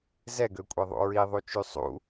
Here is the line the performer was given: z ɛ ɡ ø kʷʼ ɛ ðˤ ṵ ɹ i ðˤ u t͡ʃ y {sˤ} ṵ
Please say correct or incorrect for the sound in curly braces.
correct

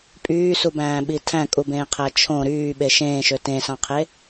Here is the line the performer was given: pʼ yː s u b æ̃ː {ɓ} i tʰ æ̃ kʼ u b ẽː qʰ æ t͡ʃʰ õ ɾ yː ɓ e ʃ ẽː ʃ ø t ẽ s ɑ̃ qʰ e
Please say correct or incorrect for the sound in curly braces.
correct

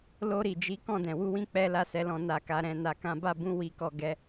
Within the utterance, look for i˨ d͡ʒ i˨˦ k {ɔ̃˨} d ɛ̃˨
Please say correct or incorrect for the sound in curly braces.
incorrect: ɔ̃˦˨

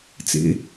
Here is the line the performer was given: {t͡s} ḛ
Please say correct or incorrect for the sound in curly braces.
correct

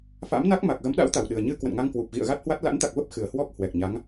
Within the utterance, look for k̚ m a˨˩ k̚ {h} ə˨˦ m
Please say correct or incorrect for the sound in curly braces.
incorrect: ɣ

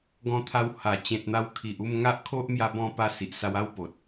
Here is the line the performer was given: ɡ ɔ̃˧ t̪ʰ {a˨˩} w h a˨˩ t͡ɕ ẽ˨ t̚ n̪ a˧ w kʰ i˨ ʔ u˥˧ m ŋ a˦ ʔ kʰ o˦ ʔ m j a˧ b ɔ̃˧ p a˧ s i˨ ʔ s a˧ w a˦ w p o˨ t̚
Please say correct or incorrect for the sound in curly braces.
incorrect: a˧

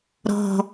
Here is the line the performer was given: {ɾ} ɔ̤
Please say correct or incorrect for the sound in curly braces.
correct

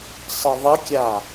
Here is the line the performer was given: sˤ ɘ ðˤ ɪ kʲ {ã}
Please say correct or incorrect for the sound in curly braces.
incorrect: a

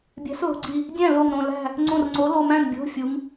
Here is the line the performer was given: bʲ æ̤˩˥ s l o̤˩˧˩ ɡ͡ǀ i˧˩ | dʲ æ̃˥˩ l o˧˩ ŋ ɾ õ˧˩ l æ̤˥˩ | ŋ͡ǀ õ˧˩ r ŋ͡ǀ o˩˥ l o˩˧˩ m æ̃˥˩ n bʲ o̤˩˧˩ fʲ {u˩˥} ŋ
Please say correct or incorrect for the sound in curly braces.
correct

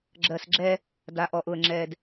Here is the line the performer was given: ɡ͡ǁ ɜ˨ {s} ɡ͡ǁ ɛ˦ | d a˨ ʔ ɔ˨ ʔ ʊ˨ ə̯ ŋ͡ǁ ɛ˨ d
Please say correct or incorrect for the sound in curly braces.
correct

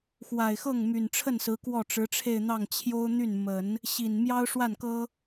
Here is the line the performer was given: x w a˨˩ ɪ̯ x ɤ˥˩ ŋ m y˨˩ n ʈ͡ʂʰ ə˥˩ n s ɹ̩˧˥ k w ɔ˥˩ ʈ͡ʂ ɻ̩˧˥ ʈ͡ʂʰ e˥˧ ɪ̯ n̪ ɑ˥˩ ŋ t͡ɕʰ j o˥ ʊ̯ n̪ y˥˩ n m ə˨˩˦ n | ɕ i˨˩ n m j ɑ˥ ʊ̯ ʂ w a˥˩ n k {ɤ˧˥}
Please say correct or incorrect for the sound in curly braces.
incorrect: ɤ˥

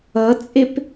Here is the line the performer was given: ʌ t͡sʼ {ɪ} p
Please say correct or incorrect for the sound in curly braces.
correct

